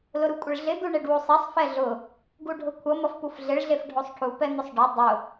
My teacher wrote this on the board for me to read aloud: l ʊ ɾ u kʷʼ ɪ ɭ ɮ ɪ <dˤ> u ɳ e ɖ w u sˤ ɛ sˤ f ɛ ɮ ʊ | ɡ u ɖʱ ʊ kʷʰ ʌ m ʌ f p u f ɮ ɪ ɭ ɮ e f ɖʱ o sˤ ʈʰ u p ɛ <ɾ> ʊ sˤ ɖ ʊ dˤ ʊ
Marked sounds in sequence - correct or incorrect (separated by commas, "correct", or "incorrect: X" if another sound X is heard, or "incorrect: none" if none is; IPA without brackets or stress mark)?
incorrect: d̪, incorrect: n̪